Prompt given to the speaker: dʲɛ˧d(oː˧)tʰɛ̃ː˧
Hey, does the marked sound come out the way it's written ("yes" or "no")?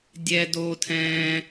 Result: yes